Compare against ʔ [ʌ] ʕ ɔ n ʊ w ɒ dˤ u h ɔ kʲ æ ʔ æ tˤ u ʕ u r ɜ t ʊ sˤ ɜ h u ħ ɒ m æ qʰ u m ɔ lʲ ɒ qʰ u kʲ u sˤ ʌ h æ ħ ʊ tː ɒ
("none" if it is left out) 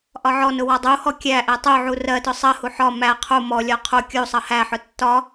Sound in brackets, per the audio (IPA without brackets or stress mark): ɒ